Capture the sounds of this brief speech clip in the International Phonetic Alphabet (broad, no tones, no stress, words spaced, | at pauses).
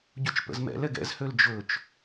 ɟut͡ʃpə̰zmɛ̰lɛɡ ɛ̰zhøl d͡ʒɵt͡ʃ